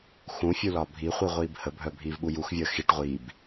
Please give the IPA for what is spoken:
xũfʲu lɒbʱiχʷi ʁʷiːbhəbʱœ bʱiːvɓujuxvʲəː xiʈ ʁʷiːb

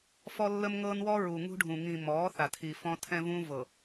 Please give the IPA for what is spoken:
fɔ˦lːə˦mŋɤ˦nwɔ˦ ɹu˨ŋṳ˦ɖʱũ˨ ŋĩ˨ mɔː˨˦θa˨tʰi˨ fɔ̃˦ tʰɛ̃˦vũ˦vɤ˨

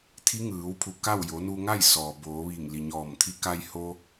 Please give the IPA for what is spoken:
t̪ʰi˧˥ŋɯː˩˧wpʰu˧˩ ka˥˨w jo˩˧nu˧ŋa˥˨j sɔː˩boː˩˧ʋi˧˩ŋ li˩ɲɔː˧˩mt̪ʰi˧˥ ka˧jho˧

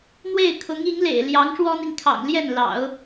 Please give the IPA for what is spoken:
n̪we˥˩ɪ̯kʰʊ˧˥ŋi˧˥ŋlḛ˨˩ɪ̯ ljɑ˧˥ŋʂwɔ˥n̪i˨ŋkʰɑ̰˨˩ŋ ljɛ˥˩nlɑ̰˨˩˦ʊ̯

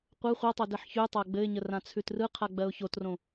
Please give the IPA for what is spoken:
qʷɯ χʷɜtˤod ɘħçʉtˤa ɡ͡bɘɪ̯ɲə rãt͡sʰʉtrɯqʰa ɡ͡bɜʊ̯çotrõ

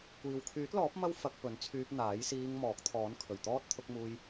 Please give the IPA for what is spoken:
kʷiː˨wkʰyː˨˥t̚lɔː˨˥p̚ mɐ˥w fɐ˧k̚pɵ˨˥nt͡sʰyː˧p̚ n̪aː˨˥jsiː˧ŋ mɔː˨˥k̚t̪ʰɔː˨˥n kʰɵ˨˩ɥt̪ɔː˥t̚ t̪ʰʊ˧k̚muː˧j

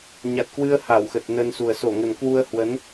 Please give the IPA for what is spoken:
ɲa˨˩t̚kwɨ˧ə̯ ha˧˩wxə˨˩t̚nə˧nsu˨˩ə̯ so˧˩ŋə˨˩nkwu˧ə̯hwə˨˦n

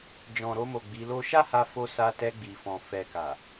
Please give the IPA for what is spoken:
d͡ʒɔ̃˨ɾo˧mo˨ ɡ͡bi˨˦lo˦ ʃa˦ha˧fo˧ sa˧tɛ˧ɡ͡bi˨fɔ̃˨ fɛ˨ka˨

